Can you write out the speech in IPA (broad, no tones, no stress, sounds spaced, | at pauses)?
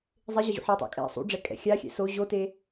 zˤ e ʑ ʌ ʑ ṵ ħ a tˤ o̰ kʼ ɛ̰ sˤ ṵ ɖ͡ʐ ɛ kʼ ɛ̰ xʲ a xʲ ɛ̰ s o ʑ o t e